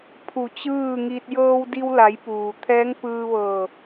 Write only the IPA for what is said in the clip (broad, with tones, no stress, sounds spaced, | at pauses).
pʰ u˧˩ t͡ɕ ɯː˥˨ ŋ i˧ t̚ j ɤː˧ w d i˧ w l a˩˧ j p uː˩ t̪ʰ ɛː˧˥ ŋ p ɯː˧ ʋ ɤː˧˩